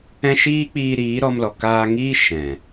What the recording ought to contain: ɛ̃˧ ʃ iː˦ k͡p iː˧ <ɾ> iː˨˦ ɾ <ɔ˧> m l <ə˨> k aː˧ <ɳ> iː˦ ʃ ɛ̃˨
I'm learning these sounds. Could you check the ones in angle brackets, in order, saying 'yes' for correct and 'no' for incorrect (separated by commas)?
yes, yes, no, no